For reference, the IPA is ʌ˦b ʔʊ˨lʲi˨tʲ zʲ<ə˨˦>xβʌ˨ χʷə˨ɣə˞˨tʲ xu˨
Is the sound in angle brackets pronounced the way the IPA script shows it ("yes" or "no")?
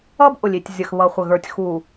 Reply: no